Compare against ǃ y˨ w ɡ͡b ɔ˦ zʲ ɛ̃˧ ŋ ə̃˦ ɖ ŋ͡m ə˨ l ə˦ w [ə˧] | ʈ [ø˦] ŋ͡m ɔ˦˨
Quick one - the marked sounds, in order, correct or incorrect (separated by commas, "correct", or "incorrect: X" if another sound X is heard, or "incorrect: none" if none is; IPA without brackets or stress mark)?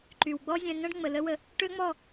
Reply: correct, correct